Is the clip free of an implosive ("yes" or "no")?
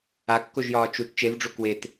yes